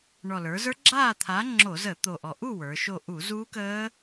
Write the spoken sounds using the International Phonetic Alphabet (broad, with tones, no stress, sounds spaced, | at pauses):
ɳ ɔ˨˩ l ə˞˩˧ z ə˞˦˥ ɡ͡ǁ aː˥˨ t̪ʰ a˨˥ ŋ͡ǁ o˧˩˧ z əː˧˩˧ t̪ o˨˩ ʔ ɔ˨˩ ʔ u˥˨ w ə˞˩˧ ʃ o˥˨ ʔ u˧˩˧ z uː˦˥ k əː˦˥